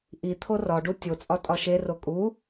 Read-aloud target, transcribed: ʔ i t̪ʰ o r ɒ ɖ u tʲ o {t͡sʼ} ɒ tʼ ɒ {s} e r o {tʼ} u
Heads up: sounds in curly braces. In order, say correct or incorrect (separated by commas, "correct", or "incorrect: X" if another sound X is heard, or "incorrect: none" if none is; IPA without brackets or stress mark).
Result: correct, incorrect: ʃ, incorrect: kʼ